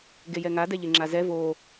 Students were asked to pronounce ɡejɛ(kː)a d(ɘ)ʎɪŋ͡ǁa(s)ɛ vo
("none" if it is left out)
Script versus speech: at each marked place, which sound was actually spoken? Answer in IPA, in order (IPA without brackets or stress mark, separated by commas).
ŋ, ɛ, z